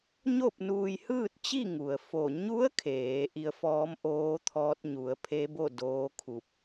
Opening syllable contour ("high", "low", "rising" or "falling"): falling